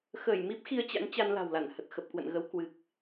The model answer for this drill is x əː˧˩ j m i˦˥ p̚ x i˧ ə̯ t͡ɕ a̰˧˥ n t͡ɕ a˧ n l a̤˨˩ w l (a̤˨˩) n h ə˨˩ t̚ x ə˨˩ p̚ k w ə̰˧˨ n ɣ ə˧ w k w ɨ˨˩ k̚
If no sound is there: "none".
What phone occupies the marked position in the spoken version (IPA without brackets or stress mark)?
a˧˩